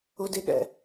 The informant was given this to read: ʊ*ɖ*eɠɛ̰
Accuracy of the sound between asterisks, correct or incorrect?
incorrect